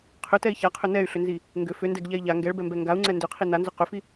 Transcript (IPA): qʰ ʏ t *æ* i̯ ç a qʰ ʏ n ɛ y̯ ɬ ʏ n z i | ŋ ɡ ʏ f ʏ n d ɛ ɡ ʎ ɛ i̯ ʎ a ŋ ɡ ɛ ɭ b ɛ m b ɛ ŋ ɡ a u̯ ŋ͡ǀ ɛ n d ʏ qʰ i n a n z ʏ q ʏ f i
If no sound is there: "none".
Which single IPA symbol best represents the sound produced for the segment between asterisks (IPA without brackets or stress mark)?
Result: ɛ